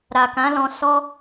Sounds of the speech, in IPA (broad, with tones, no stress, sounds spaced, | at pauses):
ɾ a˨ k ã˨˦ l ɔ̃˧ s ɔ˦